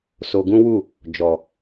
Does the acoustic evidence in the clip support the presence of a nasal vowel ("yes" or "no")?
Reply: yes